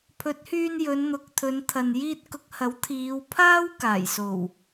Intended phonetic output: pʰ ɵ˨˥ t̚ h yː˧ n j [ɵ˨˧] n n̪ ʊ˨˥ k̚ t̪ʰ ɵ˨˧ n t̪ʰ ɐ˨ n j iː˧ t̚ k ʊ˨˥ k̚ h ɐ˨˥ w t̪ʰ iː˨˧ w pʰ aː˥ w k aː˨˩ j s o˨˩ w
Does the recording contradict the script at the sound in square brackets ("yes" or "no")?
no